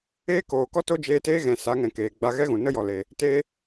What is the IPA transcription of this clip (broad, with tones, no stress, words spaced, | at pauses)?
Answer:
eː˦koː˨ kɔ˦to˦d͡ʒeː˧ teː˦ɣɛ̃˨ sa˨˦ŋɛ̃˨ keː˨ ɡ͡ba˧ɣɛ˦ɣũ˨ nə˦jɔ˨le˨ | te˦